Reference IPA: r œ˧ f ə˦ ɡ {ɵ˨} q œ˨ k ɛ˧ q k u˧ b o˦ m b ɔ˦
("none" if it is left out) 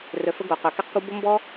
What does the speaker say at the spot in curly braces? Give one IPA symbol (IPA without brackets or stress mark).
o˨